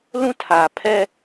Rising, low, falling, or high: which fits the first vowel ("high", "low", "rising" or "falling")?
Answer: high